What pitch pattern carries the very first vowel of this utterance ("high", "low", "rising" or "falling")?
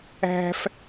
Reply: high